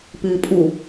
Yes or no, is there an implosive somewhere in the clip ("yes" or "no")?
no